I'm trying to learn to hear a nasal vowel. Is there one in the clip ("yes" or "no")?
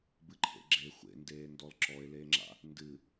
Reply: no